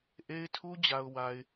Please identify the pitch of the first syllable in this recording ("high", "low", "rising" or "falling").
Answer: high